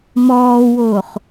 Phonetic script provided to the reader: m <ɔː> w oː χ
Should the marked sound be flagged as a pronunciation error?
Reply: no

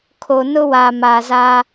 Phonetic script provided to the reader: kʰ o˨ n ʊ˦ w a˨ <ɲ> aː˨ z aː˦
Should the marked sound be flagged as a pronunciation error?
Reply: yes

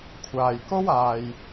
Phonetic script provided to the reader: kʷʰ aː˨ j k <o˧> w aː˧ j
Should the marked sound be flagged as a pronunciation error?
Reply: yes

